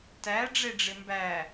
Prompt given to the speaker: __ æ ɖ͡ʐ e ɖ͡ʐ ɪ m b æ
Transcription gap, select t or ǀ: t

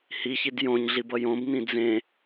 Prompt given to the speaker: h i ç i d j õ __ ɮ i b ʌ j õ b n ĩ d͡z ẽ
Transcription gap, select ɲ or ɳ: ɲ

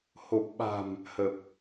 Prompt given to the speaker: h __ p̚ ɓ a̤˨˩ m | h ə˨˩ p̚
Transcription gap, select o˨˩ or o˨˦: o˨˩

